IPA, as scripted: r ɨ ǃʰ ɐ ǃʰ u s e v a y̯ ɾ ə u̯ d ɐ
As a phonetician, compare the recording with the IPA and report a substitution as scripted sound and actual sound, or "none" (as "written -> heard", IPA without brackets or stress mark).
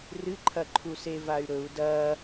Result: ə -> ɵ